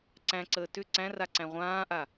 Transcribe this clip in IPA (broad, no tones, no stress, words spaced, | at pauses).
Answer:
ǀæ̃ǀəː tʏ ǀæ̃ra ǀæ̃ʁʷãːʔa